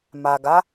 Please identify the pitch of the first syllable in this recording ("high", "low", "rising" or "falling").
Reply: low